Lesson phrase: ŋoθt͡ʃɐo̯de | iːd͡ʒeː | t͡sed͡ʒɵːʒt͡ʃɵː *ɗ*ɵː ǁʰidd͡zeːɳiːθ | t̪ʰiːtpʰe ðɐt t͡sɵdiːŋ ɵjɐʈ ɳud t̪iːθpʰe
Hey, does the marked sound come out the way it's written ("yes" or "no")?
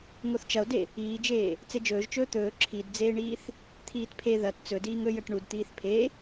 no